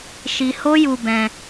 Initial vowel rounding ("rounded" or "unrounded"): unrounded